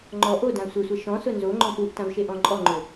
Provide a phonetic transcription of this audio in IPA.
ŋ͡ǃɔ ʔodã sʷesʷɛ ʃɔ̃sʊ nzoŋ͡ǃɔ̃ puʔtãvʃeʔɔ̃ ǃʼɔŋ͡ǃʊ

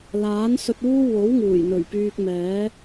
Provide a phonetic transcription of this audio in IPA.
laː˨˥nsɵ˧t̚uː˥ wo˨˥w ŋuː˨˩jn̪ɵ˨˩ɥ pyː˧k̚mɛː˨˥

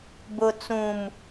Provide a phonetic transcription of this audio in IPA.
bʊ˨t͡sũ˨m

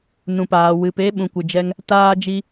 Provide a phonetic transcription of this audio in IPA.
nũ˨paː˨ wɨ˨pe˧ ɓũ˨kʷɨ˨d͡ʒɛ˧ŋ | taː˧d͡ʒi˧

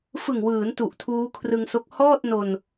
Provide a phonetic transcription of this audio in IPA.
fɯ˨˩ŋwɯː˩˦n tu˨˩ʔtʰuː˦˥kʰrɯ˧ŋso˦˥k̚ hɔː˥˩t̚no˧n

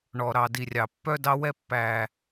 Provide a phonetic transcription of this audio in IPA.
ɳɔ˨ ɾɑ˨di˨rʲɑ˨ pːœ˧dɑ˧wɛ˧ pːæ˨

